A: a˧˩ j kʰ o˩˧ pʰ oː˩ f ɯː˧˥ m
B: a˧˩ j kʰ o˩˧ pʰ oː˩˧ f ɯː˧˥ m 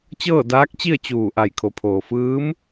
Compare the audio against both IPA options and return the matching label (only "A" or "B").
A